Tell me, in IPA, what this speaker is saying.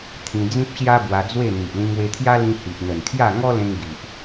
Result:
t̪ʰĩ˧d͡zĩ˦p̚ɕja˦ bwa˧d͡zwe˥˧ n̪i˨ʔlĩ˧ŋwe˧t̪ʰja˦ lĩ˧ hi˨ʔn̪ə˨˩nkʰja˥˧ ŋɔ˦lẽ˧ŋ ɡi˨ʔ

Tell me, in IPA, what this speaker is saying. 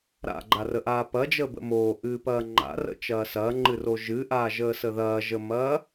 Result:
ɾa̰ɡ͡ǃarəʔaː pɐd͡ʒəːbə̰ moːʔɨːpɐː ŋ͡ǃa̰rə̰t͡ʃɐː sɐːŋ͡ǃɨro ʒɨʔaːʒəːsə ðɐːʒəmɐː

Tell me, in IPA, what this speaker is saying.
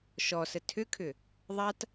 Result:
ʃɔsə tʰʏkʰʏ | ðˤat

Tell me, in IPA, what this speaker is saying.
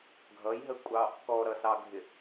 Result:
ɡʱʌjɦəkʷʼɑ | kɔɾʌsɑɡʱɪ

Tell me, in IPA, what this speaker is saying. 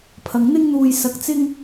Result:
pʰɐ˨˧ŋn̪ɪ˥ŋn̪uː˧j sɐ˧k̚t͡sɪ˥ŋ

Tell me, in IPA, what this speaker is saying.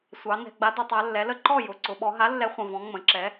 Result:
sʷɑ˩˧ nɛ̤˩˧˩ɡ͡ba˨˥dʊ˩˧tˤa˩˧ lːɛ˩˧ lə˥˩ ǃɔ˥˩ jʊ˩˧˩ǀʊ˩˧ ɓɔ˩˧ɦa˨˥lːɛ˨˥ χʷə̃˩˧˩vɔ̃˨˥ ŋ͡mə̃˩˧˩ǁɛ˨˥

